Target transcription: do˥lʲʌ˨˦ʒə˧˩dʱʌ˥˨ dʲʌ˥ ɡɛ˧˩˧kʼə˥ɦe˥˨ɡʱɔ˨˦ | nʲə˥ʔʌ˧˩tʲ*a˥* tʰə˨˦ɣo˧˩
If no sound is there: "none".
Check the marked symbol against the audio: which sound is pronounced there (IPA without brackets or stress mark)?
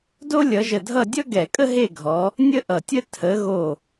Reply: ə˥